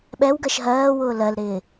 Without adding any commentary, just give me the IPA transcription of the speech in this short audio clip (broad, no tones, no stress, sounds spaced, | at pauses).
ɓ ɛ w ɡ ɜ ʃ ɦ ɜː w ʊː l ɜ l ɾ ɪː